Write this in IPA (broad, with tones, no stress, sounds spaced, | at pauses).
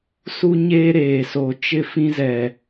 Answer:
s u˦ ɲ eː˦ ɾ eː˨ s o˨ t͡ʃ ɪ˦˨ f ĩ˦ z ɛ˨